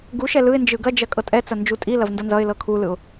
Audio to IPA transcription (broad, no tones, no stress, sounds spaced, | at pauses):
ɡ u ʃ ɛ l ɯ ɪ̯ n d͡ʒ ɯ ɡ ɐ d͡ʒ ɐ kʼ ɤ tʼ ɛ t͡s ɐ n d͡ʒ u tʼ i l ɐ v n d ʌ n z ʌ ɪ̯ l ɤ kʰ u l ɯ ʊ̯